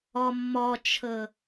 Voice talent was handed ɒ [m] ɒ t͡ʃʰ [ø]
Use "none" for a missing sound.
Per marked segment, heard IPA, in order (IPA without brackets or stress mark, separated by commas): mː, ə